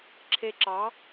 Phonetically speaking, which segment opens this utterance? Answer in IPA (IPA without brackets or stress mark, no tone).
ǁʰ